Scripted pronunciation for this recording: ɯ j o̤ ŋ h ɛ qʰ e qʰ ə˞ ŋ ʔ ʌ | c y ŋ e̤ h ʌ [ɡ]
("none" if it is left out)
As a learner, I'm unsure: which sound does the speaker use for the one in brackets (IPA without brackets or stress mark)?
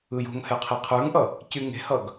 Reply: ɡ